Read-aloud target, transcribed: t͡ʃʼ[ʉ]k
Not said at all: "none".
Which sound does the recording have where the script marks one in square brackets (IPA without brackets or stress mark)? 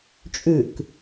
ʉ